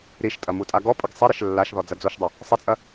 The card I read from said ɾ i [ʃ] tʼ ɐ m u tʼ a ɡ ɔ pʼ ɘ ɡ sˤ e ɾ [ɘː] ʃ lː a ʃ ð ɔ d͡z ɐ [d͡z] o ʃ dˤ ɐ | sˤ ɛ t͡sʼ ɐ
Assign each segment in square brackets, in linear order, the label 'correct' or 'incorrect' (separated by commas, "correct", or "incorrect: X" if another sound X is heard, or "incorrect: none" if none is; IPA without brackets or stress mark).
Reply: correct, incorrect: ɘ, correct